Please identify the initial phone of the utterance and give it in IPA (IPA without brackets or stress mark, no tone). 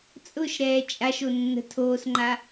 t͡sʼ